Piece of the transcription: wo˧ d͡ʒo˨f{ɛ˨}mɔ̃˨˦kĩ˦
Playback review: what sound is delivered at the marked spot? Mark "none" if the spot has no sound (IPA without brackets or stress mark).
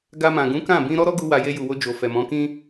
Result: ɛ˨